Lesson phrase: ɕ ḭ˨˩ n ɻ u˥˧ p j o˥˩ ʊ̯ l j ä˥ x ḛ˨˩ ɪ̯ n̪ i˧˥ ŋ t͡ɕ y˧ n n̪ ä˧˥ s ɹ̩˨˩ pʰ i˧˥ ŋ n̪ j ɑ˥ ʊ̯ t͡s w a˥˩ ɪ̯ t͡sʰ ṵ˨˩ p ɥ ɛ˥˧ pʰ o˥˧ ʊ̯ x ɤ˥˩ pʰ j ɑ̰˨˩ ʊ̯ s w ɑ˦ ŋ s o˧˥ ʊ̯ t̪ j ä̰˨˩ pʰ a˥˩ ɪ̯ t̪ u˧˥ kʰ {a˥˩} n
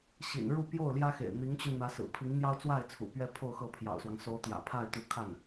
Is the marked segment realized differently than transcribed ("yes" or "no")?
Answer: no